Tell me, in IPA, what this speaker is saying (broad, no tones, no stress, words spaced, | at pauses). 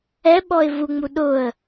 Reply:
ɛɓɔɪ̯ vuŋ͡mu ɗʊə̯